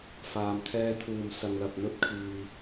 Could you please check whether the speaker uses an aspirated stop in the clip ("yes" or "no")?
yes